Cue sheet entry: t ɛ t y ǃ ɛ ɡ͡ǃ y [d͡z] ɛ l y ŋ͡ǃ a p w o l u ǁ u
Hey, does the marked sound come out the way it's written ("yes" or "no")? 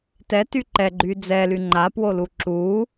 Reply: yes